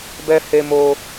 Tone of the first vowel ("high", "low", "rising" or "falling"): high